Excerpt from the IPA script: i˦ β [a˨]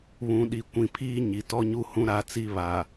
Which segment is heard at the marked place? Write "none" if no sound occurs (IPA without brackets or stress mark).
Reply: a˨